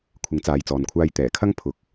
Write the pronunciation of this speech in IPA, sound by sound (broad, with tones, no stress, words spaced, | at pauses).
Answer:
kʷʰɪ˨˥ŋt͡saː˨jt͡sɔː˨nkʷʰaː˧j t̪ɛː˨˩kʰɐ˥ŋ pʰʊ˧k̚